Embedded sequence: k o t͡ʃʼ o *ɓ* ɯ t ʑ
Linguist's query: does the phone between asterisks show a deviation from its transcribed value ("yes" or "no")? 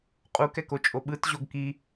no